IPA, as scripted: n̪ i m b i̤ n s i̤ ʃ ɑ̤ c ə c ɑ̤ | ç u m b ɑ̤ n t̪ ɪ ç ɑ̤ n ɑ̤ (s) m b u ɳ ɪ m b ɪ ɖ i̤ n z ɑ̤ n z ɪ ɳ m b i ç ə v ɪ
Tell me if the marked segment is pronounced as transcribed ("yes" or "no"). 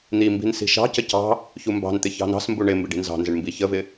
yes